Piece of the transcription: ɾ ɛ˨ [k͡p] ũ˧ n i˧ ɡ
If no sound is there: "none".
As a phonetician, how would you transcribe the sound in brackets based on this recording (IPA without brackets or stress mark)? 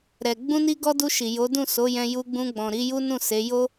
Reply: ɡ͡b